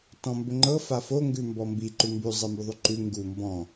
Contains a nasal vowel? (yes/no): yes